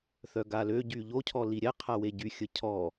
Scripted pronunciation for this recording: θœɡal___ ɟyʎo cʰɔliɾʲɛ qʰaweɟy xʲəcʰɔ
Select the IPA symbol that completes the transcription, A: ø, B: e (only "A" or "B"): A